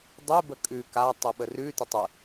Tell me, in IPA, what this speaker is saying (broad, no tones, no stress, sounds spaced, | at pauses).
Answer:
dˤ u b ə kʼ ʉ k a tˤ u ɓ ə r ʉ t ə tˤ ɯ